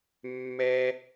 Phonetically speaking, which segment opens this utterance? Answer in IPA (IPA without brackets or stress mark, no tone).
mː